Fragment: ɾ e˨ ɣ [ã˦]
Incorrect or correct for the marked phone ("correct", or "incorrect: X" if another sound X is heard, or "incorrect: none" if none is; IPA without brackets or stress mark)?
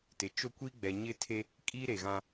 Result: correct